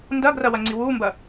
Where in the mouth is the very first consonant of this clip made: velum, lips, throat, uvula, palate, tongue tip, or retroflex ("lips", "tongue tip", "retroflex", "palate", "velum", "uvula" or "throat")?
tongue tip